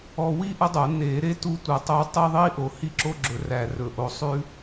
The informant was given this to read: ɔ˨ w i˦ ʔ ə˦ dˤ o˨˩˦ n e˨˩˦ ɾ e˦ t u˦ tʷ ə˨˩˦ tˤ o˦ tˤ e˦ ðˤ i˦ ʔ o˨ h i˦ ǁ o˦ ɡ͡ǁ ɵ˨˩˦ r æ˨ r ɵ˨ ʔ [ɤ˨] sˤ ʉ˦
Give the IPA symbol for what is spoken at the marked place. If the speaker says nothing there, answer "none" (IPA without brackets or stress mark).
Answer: o˨